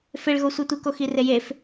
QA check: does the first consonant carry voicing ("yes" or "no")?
no